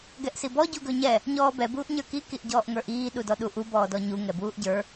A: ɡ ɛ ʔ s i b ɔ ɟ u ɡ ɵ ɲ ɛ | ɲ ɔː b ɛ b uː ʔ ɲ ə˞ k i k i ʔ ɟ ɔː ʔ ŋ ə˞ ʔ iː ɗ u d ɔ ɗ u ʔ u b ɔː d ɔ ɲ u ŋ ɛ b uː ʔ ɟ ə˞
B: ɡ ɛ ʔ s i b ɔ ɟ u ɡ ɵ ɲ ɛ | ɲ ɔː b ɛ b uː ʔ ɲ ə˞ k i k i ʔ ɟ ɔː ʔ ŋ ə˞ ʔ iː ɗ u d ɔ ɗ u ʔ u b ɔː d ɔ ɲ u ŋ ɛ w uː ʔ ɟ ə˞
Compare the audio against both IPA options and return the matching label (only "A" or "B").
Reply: A